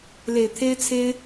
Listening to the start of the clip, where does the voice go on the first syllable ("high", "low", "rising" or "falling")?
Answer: low